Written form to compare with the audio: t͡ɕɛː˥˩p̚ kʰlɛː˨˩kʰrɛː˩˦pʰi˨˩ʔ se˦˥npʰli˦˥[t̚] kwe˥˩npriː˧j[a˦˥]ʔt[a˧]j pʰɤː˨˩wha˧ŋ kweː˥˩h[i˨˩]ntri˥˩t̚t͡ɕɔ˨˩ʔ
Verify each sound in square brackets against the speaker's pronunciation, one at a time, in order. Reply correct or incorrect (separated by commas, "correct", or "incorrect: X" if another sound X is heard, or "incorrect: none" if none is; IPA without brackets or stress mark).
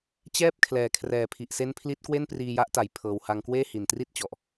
correct, correct, incorrect: a˩˦, correct